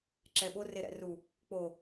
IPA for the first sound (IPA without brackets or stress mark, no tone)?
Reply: ǁ